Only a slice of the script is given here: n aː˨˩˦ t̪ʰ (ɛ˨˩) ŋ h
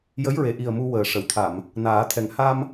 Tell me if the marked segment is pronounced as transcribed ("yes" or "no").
yes